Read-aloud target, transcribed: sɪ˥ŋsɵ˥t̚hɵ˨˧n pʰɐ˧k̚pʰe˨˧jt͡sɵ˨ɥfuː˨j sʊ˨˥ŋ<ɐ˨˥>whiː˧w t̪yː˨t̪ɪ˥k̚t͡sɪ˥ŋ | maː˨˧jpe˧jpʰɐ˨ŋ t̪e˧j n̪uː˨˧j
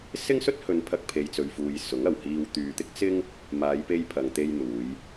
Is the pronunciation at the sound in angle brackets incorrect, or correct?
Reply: incorrect